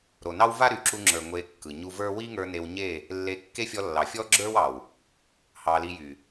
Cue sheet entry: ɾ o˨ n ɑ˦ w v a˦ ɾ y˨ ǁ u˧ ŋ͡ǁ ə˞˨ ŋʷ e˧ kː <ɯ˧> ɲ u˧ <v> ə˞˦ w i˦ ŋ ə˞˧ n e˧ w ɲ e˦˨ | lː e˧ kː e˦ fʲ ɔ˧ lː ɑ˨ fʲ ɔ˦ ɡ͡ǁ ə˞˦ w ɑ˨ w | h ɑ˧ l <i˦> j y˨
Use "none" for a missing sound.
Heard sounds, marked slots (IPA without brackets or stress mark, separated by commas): ɯ˨, v, i˧